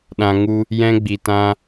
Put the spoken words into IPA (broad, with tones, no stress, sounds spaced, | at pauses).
ɗ ã˧ ŋ u˦ | j ɛ̃˧ ɡ͡b i˨ t ã˧